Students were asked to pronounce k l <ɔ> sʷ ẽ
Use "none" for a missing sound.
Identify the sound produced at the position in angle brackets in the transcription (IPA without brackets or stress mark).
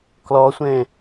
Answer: ɔ